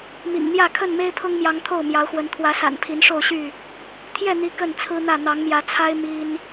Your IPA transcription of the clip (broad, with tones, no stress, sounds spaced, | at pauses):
m ḭ˨˩ ŋ n̪ j ä˥˨ kʰ ə˥˨ n m e˦ ɪ̯ pʰ ʊ˦ ŋ m j ɑ˨˦ ŋ t̪ʰ o˥˨ ʊ̯ m j ɑ˨˦ ʊ̯ x w ə˨˦ n t̪ʰ w ä˨˦ s a̰˨˩ n pʰ i˨˦ n ʂ o˥˨ ʊ̯ ɕ y˥˨ | t̪ʰ j ɛ˥˨ n̪ i˨˦ k ə˥˨ n t͡sʰ ɹ̩˦ n̪ ä˥˨ n̪ ɑ˨˦ ŋ m j ä˨˦ t͡sʰ a˦ ɪ̯ m i˦ n